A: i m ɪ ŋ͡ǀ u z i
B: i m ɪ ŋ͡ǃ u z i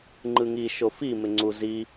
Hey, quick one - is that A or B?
A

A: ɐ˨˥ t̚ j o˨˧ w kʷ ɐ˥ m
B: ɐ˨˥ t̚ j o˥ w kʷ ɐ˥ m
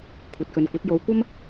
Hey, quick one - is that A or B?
A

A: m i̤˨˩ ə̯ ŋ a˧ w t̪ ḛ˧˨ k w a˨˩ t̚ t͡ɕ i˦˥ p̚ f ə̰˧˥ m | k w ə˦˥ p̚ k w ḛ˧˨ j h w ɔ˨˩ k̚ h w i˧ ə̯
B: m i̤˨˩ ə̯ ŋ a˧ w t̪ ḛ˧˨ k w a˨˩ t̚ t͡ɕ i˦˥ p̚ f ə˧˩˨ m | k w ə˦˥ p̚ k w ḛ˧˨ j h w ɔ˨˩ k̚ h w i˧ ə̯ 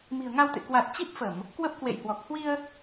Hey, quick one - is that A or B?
B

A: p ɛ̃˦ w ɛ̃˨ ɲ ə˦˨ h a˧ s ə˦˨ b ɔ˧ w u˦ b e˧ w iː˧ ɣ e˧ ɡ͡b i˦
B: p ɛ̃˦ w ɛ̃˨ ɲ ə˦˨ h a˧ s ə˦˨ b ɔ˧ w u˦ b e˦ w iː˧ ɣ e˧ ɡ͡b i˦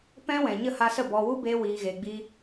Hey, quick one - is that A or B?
B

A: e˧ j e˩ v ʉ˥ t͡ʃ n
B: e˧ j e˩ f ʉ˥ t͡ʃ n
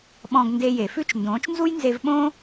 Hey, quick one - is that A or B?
B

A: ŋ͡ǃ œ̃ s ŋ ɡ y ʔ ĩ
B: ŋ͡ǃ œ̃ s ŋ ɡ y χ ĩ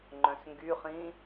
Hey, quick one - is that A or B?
B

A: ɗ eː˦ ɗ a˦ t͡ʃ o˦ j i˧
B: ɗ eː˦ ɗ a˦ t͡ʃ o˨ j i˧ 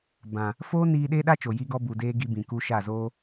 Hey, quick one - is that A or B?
B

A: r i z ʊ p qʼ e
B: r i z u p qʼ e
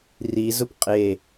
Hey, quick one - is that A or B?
A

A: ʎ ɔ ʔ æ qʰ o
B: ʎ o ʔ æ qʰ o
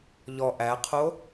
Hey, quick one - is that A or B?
A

